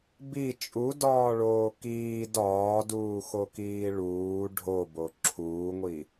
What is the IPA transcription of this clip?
b i t͡ʃʼ u d ɒː ɭ oː k iː d ɒː d uː x o k iː ɭ uː ɖʱ o b o ǁʰ uː ŋʷ i

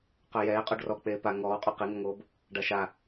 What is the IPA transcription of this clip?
q œ j ɛː qʼ o ɖ r ɔ k͡p eː p a ŋ ɔː qʼ o q i ŋ ɔ ŋ oː b | ɖ a ʃ a

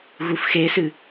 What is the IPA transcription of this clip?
ɣ u f x e s ɨ

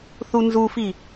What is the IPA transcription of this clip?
θ u n z u f i

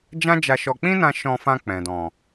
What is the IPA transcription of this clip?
d͡ʒ ã˦ d͡ʒ a˧ ʃ ɔ˧ k͡p ĩ˦ n ã˧ ʃ ɔ̃˧ f ã˧ k͡p ɛ̃˨ d ɔ̃˨

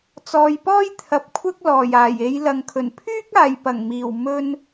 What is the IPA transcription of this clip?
t͡s ɔː˨ j p ɔː˥ j t̪ʰ ɐ˨ p̚ kʷʰ ɐ˥ k̚ l ɔː˨˩ j aː˨˩ j e˨˧ j l ɐ˨ ŋ kʰ ɵ˨˩ n pʰ yː˥ k̚ aː˨ j p ɐ˨˩ ŋ m iː˨˩ w m ɵ˧ n

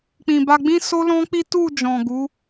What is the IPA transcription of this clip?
k͡p ĩ˨ b a˧ ɡ͡b ĩ˦ s o˦ l ɔ̃˦ k͡p i˦ t u˦˨ d͡ʒ ɔ̃˨ ɡ u˨˦

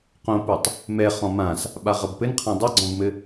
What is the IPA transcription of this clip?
q õ p u tˤ | m ɛ χ ɔ̃ m ã s | ɓ a ʁ ɐ b p ɘ n qʰ ã dˤ ɘ ɡ͡ǀ ɔ̃ b m ɘ

